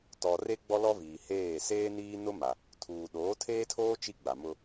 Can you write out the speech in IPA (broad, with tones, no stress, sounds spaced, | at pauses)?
t ɔ˨ r e˦ ɡ͡b ɔ˦ l ɔ˦ v iː˨ h eː˦˨ s eː˦ n iː˦ n ʊ˦ m a˨ | tʰ uː˨ ɗ oː˨˦ tʰ eː˦ tʰ oː˦ t͡ʃ i˦ ɡ͡b a˨ m ʊ˦